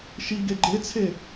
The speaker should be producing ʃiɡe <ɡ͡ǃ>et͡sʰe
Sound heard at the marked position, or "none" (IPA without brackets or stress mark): ɡ͡ǃ